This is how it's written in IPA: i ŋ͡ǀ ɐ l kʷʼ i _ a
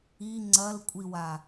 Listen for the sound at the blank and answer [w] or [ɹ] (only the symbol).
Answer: w